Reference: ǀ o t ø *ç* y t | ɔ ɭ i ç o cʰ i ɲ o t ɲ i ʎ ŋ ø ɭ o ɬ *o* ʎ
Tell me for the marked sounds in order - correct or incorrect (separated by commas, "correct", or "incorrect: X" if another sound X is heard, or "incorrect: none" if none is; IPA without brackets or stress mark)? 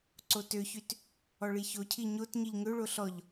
correct, incorrect: ɔ